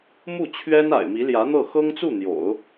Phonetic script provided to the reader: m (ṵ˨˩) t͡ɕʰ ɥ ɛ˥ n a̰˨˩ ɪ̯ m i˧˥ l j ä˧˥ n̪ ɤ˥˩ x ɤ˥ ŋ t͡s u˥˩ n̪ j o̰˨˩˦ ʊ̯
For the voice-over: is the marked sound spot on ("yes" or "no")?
no